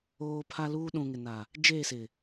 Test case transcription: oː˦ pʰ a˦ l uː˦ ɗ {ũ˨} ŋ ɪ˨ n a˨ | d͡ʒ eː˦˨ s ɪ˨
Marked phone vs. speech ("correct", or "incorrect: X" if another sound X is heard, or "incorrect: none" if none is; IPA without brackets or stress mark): correct